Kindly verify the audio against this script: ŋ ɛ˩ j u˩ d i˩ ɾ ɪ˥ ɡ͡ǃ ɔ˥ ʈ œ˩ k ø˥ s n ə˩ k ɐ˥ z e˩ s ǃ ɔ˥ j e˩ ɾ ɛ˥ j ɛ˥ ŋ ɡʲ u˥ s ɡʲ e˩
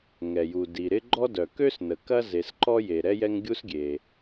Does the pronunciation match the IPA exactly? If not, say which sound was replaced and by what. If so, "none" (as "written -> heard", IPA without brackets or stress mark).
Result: ʈ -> d